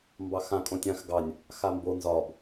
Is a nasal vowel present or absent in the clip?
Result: present